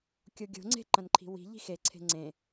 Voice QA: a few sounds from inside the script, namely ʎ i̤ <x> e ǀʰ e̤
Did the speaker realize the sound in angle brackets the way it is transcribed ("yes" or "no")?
yes